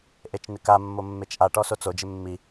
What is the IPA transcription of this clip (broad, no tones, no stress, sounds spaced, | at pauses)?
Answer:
ʔ e t͡ʃ n ɪ k a mː o mː e t͡ʃ ʔ a ʈ ɔ s o t͡s o d͡ʒ ɪ mː i